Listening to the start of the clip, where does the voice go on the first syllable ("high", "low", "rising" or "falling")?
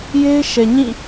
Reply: high